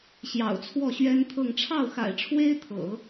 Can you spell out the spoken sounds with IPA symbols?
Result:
ɕ j ɑ̰˨˩ ʊ̯ t͡sʰ w ɔ˥˩ ɕ ɥ ɛ˥ n t̪ʰ ɤ˥˧ ŋ ʈ͡ʂʰ ɑ˥˩ ʊ̯ x a̰˨˩ ɪ̯ ʈ͡ʂʰ w e˥ ɪ̯ t̪ʰ ɤ̰˨˩˦

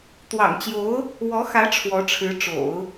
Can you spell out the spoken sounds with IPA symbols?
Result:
t̪ w ɑ̰˨˩ ŋ t͡ɕ j o˧˥ ʊ̯ | w ɔ˧˥ x ä˧˥ ʈ͡ʂʰ w ɔ˧˥ ʈ͡ʂʰ ɻ̩˧˥ ʈ͡ʂ o̰˨˩˦ ʊ̯

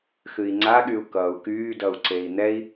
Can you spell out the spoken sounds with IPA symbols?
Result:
x ɨ i̯ ŋ͡ǀ a ɠ y u̯ k ʌ u̯ k yː d ʌ u̯ ǀ e i̯ n̪ ɛ i̯

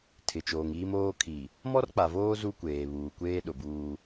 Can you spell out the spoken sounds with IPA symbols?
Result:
tʰ ɪ˨ t͡ʃ oː˨ ŋ iː˦ m oː˦ kʰ i˨ | m ɔ˦ r k͡p a˨ v oː˦ z u˦ kʷ eː˨ β uː˨ kʷ eː˦ ɗ ʊ˨ b uː˦

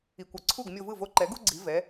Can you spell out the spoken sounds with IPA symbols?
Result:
i˩ kʷ ʌ˩ ǀʰ u˥˩ ɡ mʲ o˧ v ɯ˥˩ v o˧ ǃ ɛ˩˥ ɡ u˥ ɡ͡ǀ i˩˥ v ɛ˩˥

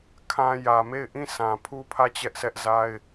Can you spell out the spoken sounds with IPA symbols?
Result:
kʰ ã˦ j ä˨ m e˦˨ ɪ̯ ʔ ĩ˦˨ sʰ ã˨ pʰ u˦ pʰ ä˦˨ t͡ɕ ɛ˦ ʔ s ɛ˦ ʔ z a˦ ɪ̯

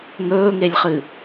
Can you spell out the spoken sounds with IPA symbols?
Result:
ŋ ɵː ŋ e lʲ χ ɨ

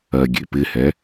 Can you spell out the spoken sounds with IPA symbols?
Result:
ɜ ɡʲ ḛ p ɪ h ɛ

